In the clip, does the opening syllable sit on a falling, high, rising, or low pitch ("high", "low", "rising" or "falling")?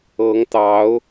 rising